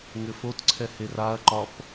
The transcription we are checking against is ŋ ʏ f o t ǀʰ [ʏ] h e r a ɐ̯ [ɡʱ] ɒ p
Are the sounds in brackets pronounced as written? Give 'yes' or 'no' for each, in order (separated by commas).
no, no